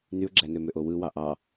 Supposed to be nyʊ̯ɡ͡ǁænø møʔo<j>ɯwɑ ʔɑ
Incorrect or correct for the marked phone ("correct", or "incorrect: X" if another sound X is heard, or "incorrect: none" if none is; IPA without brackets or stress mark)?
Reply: incorrect: w